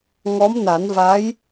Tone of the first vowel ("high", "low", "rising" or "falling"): rising